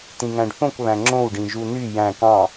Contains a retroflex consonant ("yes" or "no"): yes